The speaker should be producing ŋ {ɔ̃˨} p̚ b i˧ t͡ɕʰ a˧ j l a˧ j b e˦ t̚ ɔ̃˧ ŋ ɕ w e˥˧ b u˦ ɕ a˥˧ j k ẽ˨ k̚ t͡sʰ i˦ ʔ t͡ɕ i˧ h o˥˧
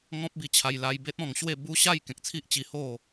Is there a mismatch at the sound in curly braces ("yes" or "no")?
yes